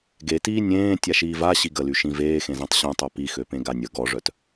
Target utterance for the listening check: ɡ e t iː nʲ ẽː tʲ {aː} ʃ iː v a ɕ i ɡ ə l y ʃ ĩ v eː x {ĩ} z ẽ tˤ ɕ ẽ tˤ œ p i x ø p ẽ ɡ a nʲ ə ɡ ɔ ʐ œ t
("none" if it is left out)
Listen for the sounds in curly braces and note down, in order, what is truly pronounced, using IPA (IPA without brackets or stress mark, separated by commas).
a, ẽ